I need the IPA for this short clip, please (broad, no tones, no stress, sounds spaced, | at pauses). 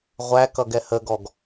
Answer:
ʁʷ æ k ʌ ɡ ɛ h ə ɡ ɔ ɡ